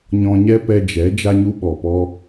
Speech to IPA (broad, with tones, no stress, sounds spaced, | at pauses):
ɲ ɔ̃˧ ɲ ɛ˦ p ɛ˧ d͡ʒ ɛ˨˦ d͡ʒ a˧ ɲ u˧ ɓ ɔ˨ p ɔ˧